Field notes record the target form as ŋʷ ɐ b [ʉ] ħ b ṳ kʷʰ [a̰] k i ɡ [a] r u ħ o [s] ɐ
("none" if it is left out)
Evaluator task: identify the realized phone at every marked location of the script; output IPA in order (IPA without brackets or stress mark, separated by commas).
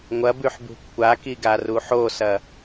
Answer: ʉ, a, a, s